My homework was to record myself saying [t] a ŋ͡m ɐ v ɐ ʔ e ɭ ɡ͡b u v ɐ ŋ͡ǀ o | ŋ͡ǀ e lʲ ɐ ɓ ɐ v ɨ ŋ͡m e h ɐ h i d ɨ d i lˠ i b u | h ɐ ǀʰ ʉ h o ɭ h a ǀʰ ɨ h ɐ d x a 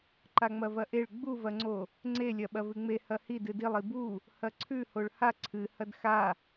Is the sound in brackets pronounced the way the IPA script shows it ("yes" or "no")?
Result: no